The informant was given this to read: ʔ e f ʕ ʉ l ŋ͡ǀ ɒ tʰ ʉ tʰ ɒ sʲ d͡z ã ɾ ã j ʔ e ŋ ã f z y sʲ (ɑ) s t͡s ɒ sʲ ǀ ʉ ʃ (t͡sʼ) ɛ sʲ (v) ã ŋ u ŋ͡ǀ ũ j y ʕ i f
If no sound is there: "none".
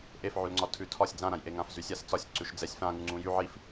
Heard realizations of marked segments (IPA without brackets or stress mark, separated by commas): a, d͡z, f